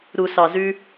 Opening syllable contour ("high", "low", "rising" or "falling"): low